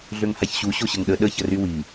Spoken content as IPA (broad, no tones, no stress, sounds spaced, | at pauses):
ɮ ø ŋ h a ç ɕ u ɕ o ɕ ə ŋ ɗ ə ɗ ə ç ə r y w i